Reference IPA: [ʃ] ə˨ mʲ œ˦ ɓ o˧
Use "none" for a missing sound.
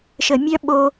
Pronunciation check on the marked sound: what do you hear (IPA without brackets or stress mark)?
ʃ